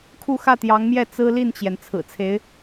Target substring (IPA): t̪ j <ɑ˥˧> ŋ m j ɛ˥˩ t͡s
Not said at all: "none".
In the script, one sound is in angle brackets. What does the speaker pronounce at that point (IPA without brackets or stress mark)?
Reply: ɑ˧˥